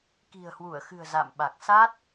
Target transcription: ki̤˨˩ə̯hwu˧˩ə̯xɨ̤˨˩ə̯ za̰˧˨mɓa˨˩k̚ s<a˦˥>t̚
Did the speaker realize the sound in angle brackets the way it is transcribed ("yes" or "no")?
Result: yes